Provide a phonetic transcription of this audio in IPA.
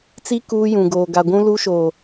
t͡s i˦ k uː˦ j ũ˨ ɡ oː˨ ɡ a˨ ɡʷ ũ˦ l u˦ ʃ oː˨

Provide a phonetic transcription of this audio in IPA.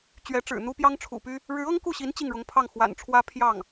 t͡ɕ ɥ ɛ˧˥ ʈ͡ʂ ɻ̩˨˩ n̪ u˥ p j ɑ˥ ŋ ʈ͡ʂʰ ṵ˨˩ p y˥ | ɻ ɻ̩˧˥ ɤ˥ ŋ k u˥˩ ɕ i˧˥ n t͡ɕ i˥˩ ŋ ɻ ʊ˧˥ ŋ pʰ ɑ˥˩ ŋ x w a̰˨˩ n ʈ͡ʂʰ w ä˥ pʰ j ɑ˥˩ ŋ

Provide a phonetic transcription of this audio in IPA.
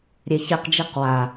ɾʲ e ç i q d͡ʒ i q w a

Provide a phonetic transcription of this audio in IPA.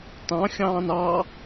t ɑ̃ xʲ ɑ̃ː n ɑ

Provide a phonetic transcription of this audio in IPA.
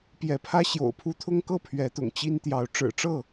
p j ɛ˨˦ pʰ ä˦ ɕ j o̰˨˩ ʊ̯ pʰ u˦ t̪ʰ ʊ˦ ŋ k ɤ˥˨ pʰ ɥ ɛ˨˦ t̪ ʊ̰˨˩ ŋ t͡ɕ i˦ n t̪ j ɑ˨˦ ʊ̯ ʈ͡ʂ ɻ̩˨˩ ʈ͡ʂ ɤ˥˨

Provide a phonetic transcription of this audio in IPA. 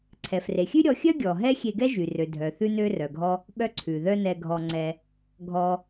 ǀʰ ɛ˩ f r e˩ xʲ ʉ˥ ɾʲ ɔ˧ xʲ œ˥ ɡʲ ɔ˩ ɦ ɛ˥ xʲ e˧ ɡ ɛ˥ ʒ y˩ r ø˩ dʱ œ˩ θ ʉ˧ n ø˧ r œ˩ ɡʱ ɔ˧ | ɓ œ˧ ǀʰ ʉ˩ ð œ˧ n ɛ˧ ɡʱ ɔ˧ ŋ͡ǀ ɛ˧ | ɡʱ ɔ˧

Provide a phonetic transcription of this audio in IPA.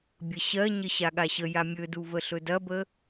bʲ ə ɕ ɜ ɲ ə ɕ a ɠ a ɕ ə j a mʲ ɵ d u v ə ɬ ɵ d ɐ b ə

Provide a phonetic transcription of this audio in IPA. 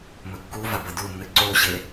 m ɵ kː u v a b ɐ d u nː ɨ ǀ o ɕ e

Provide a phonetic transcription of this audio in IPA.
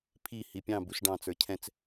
pʰ i h i pʲ ɑ̃ b u s ɖ ɑ̃ t͡s ə˞ cʰ ɛ̃ t͡s

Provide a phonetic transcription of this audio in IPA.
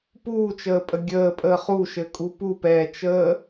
p uː t͡ʃ əː pʼ ə ɡʲ əː pʼ əː χ u ʃ ɘ kʼ u p u p ɛː t͡ʃ əː

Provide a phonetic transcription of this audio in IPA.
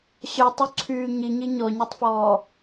ɕ œ tˤ u ǀʰ yː ɲ i ɲ i ɲ ɔ ɲ o tˤ f ɔː

